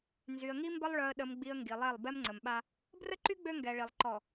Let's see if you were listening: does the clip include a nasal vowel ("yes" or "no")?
no